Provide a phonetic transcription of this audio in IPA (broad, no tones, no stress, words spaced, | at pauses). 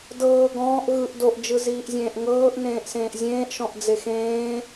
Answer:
dɤː ɡɔ̃ːʔ ɣɯʔ doʔd͡ʒɯziːʔzʲẽːʔ ŋɤːʔnẽːʔ sẽːʔzʲẽːʔʃɔ̃ʔ d͡zexẽː